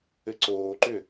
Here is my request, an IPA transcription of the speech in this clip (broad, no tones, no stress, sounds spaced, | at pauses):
ɘ ǀ oː ǃ ʏ